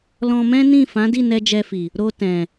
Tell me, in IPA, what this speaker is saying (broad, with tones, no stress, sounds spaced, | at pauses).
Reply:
l ɔ̃˧ m ɛ̃˦ n ĩ˦˨ f ã˨˦ d i˦˨ n ɛ˧ d͡ʒ ɛ˧ f i˨ | ɾ o˧ t ɛ̃˨